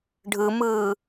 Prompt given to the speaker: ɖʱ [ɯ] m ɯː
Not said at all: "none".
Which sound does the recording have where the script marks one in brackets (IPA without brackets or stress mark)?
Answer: ɯ